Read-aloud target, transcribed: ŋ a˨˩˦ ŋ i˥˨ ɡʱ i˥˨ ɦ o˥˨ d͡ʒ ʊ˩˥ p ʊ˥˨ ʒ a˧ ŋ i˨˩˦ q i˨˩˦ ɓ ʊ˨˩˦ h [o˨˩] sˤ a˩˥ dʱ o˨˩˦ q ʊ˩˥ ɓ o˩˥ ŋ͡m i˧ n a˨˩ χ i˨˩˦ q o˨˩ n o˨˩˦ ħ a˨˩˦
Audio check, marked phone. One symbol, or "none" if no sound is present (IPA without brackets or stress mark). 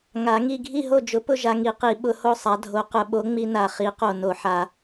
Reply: o˥˨